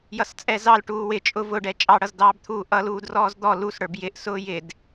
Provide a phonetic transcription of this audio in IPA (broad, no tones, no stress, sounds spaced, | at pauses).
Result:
j ʌ s t͡sʼ ɛ z ɑ l ʈ uː w ɪ t͡ʃʼ ʊ v ʊ ɖ ɛ t͡ʃʼ ɑ ɽ ʌ z d ɑː b t̪ʰ uː ʔ ʌ l uː d r ɔː z d̪ ɔ l u s ɽ ə˞ b j ɪ ʔ s ʊː j ɪ d